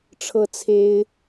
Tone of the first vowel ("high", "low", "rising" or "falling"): high